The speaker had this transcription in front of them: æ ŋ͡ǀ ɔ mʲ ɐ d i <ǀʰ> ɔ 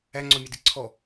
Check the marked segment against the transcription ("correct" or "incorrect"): correct